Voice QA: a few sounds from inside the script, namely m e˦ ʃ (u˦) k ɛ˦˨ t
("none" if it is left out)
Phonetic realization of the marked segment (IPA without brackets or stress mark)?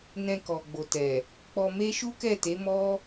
u˦